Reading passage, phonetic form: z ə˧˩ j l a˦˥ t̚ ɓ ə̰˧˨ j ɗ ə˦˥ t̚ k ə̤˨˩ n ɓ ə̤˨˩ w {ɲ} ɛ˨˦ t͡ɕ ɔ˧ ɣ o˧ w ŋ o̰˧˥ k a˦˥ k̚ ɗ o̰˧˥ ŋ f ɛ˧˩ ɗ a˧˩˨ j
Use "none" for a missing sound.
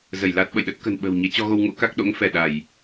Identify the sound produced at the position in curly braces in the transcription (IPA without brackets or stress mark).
ɲ